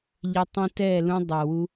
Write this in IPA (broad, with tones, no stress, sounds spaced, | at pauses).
ʎ ɛ˧ tˤ ĩ˧ t ɛ˦˨ l ũ˧ dˤ ɜ˨ w u˧